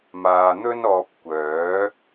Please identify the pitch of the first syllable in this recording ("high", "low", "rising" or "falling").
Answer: low